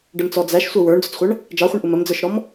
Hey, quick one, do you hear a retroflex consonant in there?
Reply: yes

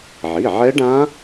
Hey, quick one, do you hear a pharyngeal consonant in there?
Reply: yes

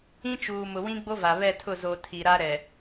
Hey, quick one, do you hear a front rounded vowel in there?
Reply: no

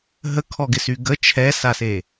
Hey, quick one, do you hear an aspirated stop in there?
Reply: yes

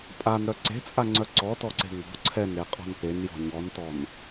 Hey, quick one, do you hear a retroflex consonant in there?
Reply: no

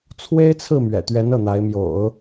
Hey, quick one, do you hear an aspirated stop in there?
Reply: yes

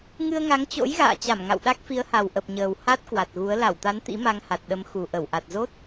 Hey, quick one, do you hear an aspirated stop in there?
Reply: no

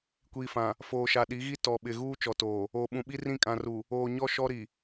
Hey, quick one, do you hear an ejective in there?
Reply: yes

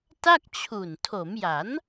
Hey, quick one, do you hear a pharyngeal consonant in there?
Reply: no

